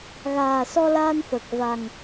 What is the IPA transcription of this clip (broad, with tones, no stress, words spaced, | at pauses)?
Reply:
ɣaː˨˩ sɔ˧laː˧nfəː˨˩k̚ va˨˩ŋ